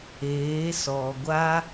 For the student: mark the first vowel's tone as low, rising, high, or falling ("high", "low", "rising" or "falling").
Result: rising